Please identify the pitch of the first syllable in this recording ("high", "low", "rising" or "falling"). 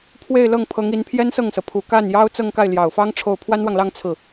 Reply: falling